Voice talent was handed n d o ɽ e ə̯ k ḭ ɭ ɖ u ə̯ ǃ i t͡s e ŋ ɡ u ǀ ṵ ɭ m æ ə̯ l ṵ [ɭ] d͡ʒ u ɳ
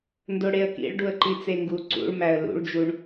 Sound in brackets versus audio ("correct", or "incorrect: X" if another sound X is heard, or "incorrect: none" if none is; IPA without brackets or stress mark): correct